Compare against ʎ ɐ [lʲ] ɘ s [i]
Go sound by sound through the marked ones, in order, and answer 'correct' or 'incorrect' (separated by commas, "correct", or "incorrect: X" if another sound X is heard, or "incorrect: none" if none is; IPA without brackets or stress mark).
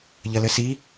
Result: incorrect: l, correct